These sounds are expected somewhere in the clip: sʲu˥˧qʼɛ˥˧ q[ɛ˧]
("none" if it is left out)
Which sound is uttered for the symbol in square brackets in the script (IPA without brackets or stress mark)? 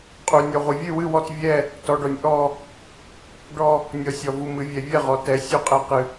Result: ɨ˧